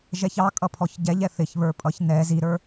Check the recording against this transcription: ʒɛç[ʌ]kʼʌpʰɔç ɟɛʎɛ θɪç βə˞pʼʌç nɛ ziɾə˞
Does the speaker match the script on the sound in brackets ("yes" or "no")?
no